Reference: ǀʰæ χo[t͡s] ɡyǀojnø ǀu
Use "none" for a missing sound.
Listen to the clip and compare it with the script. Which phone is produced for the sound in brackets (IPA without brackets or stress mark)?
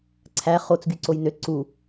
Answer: t͡s